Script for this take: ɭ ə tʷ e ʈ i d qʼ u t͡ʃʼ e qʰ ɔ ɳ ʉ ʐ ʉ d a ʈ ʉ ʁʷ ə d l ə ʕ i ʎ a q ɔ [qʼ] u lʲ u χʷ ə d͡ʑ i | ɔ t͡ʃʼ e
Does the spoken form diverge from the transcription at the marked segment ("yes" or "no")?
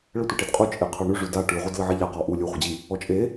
yes